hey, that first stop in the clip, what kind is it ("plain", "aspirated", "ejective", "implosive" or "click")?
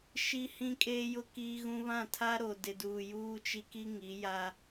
ejective